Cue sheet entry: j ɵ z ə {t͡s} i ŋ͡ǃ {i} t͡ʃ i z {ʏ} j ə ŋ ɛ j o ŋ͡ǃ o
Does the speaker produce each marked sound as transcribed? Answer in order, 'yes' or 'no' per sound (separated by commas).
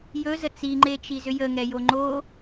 yes, no, yes